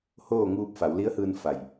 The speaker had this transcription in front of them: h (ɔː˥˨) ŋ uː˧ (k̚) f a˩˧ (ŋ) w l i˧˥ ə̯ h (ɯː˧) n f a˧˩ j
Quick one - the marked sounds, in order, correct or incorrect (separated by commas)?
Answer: incorrect, incorrect, incorrect, correct